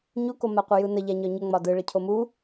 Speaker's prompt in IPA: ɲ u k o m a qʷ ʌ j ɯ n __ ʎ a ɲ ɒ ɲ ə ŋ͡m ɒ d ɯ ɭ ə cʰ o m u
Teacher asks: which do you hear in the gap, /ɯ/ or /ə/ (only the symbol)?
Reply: ə